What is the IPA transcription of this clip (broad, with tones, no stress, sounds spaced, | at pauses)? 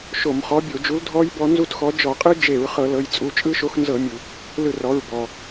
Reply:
ʃ o˧˩˧ m χ ɔ˨˥ bʲ o˧˩˧ d͡ʒ u˨˥ l dʱ ɔ˦˥ j b ɔ˨˥ n z u˦˥ t x ɔ˨˥ d͡ʒ ɔ˧˩˧ qʼ ɯ˦˥ d͡ʒ e˧˩˧ ɹ χ ɤ˧˩˧ l ɤ˩˧˩ j t͡sʼ u˩˧˩ t͡ʃʼ ɯ˦˥ ʃ o˨˥ x n z ɤ˧˩˧ mʲ u˩ | l ɯ˧˩ r ɔ˩˧˩ ɹ b ɔ˩